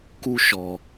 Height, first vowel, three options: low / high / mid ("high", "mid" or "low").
high